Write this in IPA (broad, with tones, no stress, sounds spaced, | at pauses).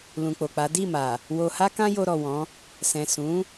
l ũ˨ k͡p o˨ k͡p a˨˦ d i˦˨ m a˨ | w o˨ h a˧ k ã˧ j o˧ ɾ ɔ˨ w ɔ̃˨˦ | s ɛ̃˨ s ũ˨˦